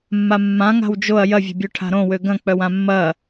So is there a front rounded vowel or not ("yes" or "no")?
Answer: yes